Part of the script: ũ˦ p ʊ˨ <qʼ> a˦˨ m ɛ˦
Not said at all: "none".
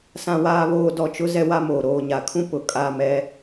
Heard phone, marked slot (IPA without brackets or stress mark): kʼ